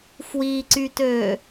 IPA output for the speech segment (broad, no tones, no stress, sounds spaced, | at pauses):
f w i ǀ y t ø